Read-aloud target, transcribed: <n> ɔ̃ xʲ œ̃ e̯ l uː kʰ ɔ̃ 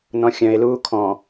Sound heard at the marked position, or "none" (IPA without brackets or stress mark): n